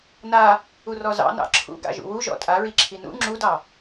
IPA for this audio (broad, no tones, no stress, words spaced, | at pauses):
na | urɔzɑ̰ nɑ̰ǁʰṵ ɡa̰ʒṵwu ʒɔ̰tʼaɹi ǁʰinṵ ŋ͡ǁudɑ